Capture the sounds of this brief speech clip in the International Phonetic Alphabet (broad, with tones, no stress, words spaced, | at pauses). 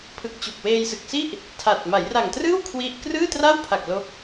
pʰɯ˨˩k̚t͡ɕu˨˩k̚ weː˧jsɯ˨˩k̚si˥˩ʔ | tʰa˨˩t̚ ma˩˦jra˨˩ŋtrɯː˥˩w kʰwi˥˩ʔ krɯː˥˩tra˥˩wpʰa˨˩k̚ lo˦˥k̚